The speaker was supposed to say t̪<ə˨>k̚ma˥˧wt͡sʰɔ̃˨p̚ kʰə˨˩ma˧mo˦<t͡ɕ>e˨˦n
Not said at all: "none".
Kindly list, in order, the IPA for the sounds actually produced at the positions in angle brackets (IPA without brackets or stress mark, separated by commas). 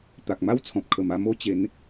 a˨, t͡ɕ